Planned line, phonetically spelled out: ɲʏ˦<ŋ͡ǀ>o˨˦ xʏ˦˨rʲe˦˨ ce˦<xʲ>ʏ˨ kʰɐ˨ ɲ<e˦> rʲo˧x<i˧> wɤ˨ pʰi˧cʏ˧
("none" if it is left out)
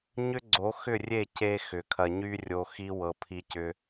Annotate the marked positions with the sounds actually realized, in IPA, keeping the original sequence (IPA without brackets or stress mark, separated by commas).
ɡ͡ǀ, x, y˦, i˦